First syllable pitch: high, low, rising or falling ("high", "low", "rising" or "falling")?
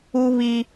high